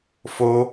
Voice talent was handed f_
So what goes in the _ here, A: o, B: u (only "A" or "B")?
A